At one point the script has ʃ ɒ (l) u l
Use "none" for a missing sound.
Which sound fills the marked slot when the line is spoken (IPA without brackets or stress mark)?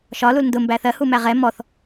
l